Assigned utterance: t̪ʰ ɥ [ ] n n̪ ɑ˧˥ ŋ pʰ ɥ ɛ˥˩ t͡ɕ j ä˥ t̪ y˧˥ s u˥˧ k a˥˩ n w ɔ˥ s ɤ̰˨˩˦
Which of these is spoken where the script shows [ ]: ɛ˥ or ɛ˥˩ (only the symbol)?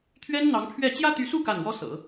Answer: ɛ˥